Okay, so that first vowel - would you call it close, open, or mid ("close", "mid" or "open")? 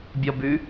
mid